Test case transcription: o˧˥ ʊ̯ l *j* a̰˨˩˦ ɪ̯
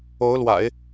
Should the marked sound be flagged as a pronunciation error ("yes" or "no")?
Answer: yes